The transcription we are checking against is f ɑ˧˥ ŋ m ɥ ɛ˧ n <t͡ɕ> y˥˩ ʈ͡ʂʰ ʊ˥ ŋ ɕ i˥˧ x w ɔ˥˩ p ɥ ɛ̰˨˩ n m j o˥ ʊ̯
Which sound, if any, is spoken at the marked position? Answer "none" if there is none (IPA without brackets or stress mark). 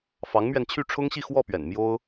t͡ɕʰ